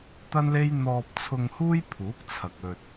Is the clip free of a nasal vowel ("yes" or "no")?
yes